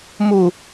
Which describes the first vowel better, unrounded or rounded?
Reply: rounded